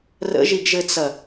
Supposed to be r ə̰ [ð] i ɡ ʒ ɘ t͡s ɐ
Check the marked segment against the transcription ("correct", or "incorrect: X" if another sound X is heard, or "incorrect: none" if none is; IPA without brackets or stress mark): incorrect: ʒ